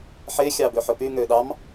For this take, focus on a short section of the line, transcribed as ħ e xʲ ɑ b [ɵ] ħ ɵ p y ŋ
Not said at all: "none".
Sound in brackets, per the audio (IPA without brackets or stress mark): ø